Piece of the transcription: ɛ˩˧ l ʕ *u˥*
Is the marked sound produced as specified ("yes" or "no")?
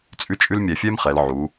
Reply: no